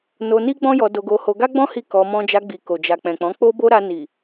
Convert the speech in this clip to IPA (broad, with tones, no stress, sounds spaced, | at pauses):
n o˧ n i˦ ɡ͡b ɔ̃˦ j ɔ˧ d o˧ ɡ o˧ h o˧ ɡ a˦ ɡ͡b ɔ̃˦ h i˦˨ k ɔ˧ m ɔ̃˦ d͡ʒ a˧ ɡ͡b i˨ k o˨ d͡ʒ a˨ k͡p ɛ̃˨ k͡p ɔ̃˨˦ k͡p o˦ b o˦ ɾ a˧ n i˨